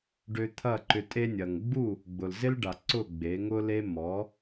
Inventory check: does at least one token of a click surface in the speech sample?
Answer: yes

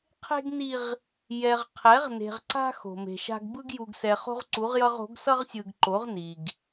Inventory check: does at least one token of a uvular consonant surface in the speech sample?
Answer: yes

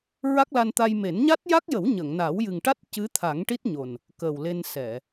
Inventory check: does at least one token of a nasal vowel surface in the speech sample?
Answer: no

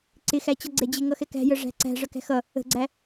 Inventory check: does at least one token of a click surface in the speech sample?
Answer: yes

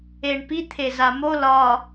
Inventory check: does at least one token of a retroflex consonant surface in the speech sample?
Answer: yes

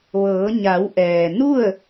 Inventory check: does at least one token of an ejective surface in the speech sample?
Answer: no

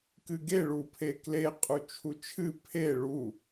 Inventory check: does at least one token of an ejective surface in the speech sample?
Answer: yes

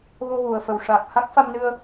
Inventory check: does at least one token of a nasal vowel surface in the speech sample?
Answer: no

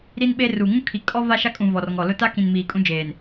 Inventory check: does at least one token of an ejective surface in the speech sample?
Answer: yes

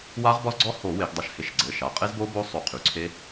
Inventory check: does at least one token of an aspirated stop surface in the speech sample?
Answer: yes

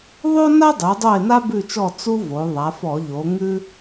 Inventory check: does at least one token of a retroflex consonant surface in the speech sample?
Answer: no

